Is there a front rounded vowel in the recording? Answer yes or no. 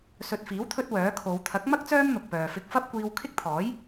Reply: yes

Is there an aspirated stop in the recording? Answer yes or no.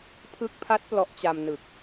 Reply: yes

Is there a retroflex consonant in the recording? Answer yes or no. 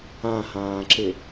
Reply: no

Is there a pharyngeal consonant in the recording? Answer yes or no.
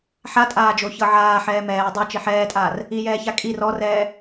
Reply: yes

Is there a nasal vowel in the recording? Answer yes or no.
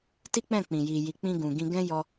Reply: yes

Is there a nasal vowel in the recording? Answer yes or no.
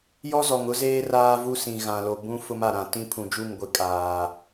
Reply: yes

